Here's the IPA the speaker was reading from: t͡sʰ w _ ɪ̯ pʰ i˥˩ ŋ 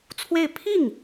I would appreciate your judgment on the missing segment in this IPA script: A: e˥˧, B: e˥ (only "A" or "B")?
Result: A